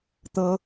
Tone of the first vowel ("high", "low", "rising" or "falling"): high